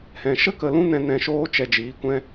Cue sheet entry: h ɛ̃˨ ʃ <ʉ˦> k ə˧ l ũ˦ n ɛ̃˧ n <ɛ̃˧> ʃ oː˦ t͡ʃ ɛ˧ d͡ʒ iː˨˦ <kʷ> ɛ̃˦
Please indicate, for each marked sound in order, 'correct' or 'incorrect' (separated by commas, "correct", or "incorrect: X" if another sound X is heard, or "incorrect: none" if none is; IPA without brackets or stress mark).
incorrect: ə˦, correct, correct